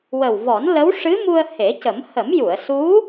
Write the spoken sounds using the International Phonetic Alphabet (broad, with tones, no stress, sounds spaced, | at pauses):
w ə˨˩ w v ɔ˨˩˦ n l ə˧˥ w ʂ ɨ˧˥ m u˧ ə̯ h e˨˩˦ c ə˨˩˦ m h ə˨˩˦ m j u˨˩˨ ə̯ s u˧˥